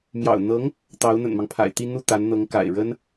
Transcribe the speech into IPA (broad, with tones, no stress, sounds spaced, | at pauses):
m j ɑ̰˨˩ ʊ̯ n̪ ɤ˧˥ ŋ | t̪ ɑ˧˥ ʊ̯ n̪ ə̰˨˩ n m ɑ˦ ŋ pʰ a̰˨˩ ɪ̯ t̪ i˥˧ n̪ u˥˩ t̪ a˧˥ n n̪ ɤ˧˥ ŋ k a̰˨˩ ɪ̯ ɻ ə˥ n